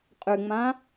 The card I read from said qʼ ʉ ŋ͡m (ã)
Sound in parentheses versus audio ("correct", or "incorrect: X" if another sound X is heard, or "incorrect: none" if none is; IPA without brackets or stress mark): correct